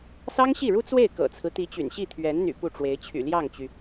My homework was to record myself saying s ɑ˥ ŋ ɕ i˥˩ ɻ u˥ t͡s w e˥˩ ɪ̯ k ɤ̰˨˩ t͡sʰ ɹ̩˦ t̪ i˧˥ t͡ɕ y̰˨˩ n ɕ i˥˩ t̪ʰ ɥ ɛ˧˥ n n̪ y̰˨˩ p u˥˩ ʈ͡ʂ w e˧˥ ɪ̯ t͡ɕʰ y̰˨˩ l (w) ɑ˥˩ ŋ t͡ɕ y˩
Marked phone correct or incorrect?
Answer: incorrect